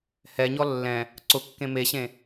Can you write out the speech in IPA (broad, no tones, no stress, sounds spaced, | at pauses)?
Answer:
h ɛ ɲ ɔ lː ɛ̃ | ǀ ʊ kː ẽ m e ɕ ẽ